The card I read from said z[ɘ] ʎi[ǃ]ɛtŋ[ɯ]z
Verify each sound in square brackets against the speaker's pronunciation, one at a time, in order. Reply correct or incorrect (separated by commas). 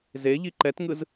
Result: incorrect, correct, correct